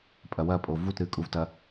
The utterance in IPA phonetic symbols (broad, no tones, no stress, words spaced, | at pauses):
pʼɐwɐpʼo vutɾɨkʼuvtɐ